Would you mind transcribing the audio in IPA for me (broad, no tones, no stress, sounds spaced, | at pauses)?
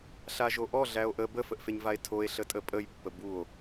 ɬ a ʒ o ʔ ɔ ɮ æ o̯ ʔ ə b ə f ə ʔ f e ɲ v a e̯ tʰ o e̯ ɬ ə tʼ ə pʼ ə j pː ə b u o̯